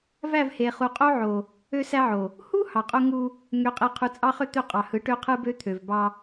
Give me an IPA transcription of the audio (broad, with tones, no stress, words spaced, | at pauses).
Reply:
væ˦˨vhe˨ χu˨qʼo˦ʕo˨ | ø˦sæ˦ʕo˨ | hu˦ hɑ˨qʼo˦ŋu˦ | ŋø˨qʼe˨ qʰu˨t͡sʼɑ˦ χø˦t̪ø˦˨ qʼɑ˨hɯ˨˦ ʈø˦qʰɯ˦bø˦ t̪ʰø˨vbɑ˦